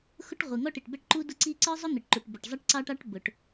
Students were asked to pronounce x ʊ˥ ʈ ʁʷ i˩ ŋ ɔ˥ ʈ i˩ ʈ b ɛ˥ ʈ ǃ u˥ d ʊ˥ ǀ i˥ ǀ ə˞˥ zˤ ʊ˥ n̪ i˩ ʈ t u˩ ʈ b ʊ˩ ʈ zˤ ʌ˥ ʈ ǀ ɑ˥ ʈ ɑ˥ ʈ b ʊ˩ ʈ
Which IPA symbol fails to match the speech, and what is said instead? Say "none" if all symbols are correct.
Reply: t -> ǃ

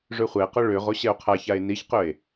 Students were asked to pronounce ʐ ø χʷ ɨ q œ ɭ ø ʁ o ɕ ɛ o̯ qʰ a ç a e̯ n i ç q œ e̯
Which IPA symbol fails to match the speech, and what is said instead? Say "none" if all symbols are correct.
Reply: ɨ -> ɛ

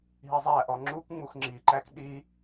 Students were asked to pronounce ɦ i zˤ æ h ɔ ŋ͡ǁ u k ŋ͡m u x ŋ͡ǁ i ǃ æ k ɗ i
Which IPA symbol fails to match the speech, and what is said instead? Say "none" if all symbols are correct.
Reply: h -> ʔ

